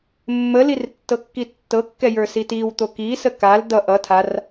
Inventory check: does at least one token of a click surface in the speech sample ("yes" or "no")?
no